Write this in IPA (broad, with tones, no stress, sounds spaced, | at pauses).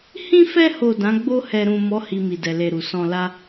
h ĩ˧ f ɛ˧ h o˨ d ã˨˦ ɡ͡b o˧ h ɛ˨ ɾ ũ˨ m ɔ˨˦ h i˧ m i˨ d ɛ˨ l e˨ ɾ u˨ s ɔ̃˨ l a˧